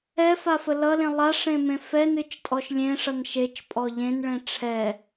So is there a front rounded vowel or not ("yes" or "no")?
no